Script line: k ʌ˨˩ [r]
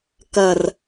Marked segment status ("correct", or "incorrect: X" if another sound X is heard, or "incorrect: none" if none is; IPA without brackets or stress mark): correct